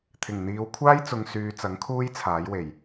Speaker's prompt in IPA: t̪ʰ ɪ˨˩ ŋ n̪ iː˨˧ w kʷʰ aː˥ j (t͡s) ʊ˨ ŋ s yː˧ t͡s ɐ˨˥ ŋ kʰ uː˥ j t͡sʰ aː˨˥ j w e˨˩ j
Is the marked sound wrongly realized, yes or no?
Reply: no